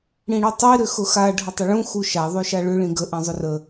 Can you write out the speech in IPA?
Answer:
ɽ ĩ ɽ ʉ tˤ i ɾ ʏ x ʊ x a ɖʱ ʊ tˤ ə ɭ ũ x u ʃ a ðˤ ʉ ʃ a ɭ ʏ ɭ ĩ ɡ ə ʔ ĩ zˤ ʏ r ə

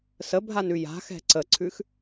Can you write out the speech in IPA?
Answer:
s ə bʱ a n ʉ j a̤ x ɛ̤ ǀ ə ǀʰ ʉ x

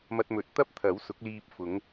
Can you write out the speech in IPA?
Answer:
m ɐ˧ t̚ m ɵ˨˥ t̚ t̪ ɐ˥ p̚ t̪ʰ ɐ˨˥ w s ʊ˨˥ k̚ l iː˧ p̚ f ʊ˨˧ ŋ

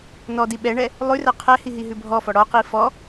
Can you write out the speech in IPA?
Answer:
n ɔ d i ɓ ɛ ɳ ɛ | lˠ ʉ r ɛ qʰ ɛ h i ɦ i ɦ ʉ bʱ ɔ f ɔ ɽ ɔ q i f ɔ

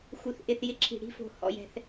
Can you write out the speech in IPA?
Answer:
x u˩ θ ʔ ɪ˩ θ j ɪ˨˥ ǁʰ i̤˩ ɽ i̤˦˨ f o̤˩ h ɔ̰˩ j ɛ̤˩ θ

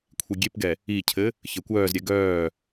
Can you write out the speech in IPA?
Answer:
kʷʰ i ɡʲ e p ɡ ɛ | i cʰ ɘ | ç ɘ kʷ œː z ɾʲ ɛ ɡ œː

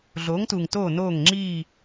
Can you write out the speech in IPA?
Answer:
ɮ oː˨˥ ŋ t uː˨ ŋ t oː˦˨ n oː˦˨ ŋ ŋ͡ǁ iː˦˨

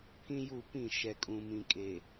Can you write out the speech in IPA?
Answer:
pʰ ĩ˦ j u˦˨ p ĩ˦˨ ʃ ɛ˨ kʼ ũ˨ m ĩ˨ kʼ eː˨

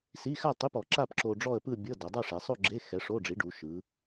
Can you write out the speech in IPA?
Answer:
s i˧˥˧ x a˥˧ tˤ i˧˥˧ p ɔ˩˧ ǁ a˥˧ p ǁ o˧ ɖ͡ʐ ɔ˥˧ ə̯ p ɯ˥˧ bʲ ɤ˧˥˧ d ɤ˩˧ dˤ a˥˧ ʂ ɛ˩˧ sˤ o˥˧ ɡ͡ǁ e˧˥˧ x ɛ˨˥ ʂ o˧˥˧ ɖ͡ʐ i˨˥ ɖ u˩˧ ʃ ɯ˩˧

